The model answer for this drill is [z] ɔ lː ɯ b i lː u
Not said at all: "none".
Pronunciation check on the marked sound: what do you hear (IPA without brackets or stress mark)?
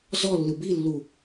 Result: z